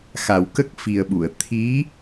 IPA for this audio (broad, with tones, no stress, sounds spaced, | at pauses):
x a˨˩ w k ə˦˥ k̚ f i˨˩ ə̯ ɓ u˨˩˨ ə̯ t̪ʰ i˧˥